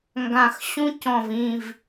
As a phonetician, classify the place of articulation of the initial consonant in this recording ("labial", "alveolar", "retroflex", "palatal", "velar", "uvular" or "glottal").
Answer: velar